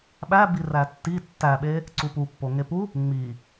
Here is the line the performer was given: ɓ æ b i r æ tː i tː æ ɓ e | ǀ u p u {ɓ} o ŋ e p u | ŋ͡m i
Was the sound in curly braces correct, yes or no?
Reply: no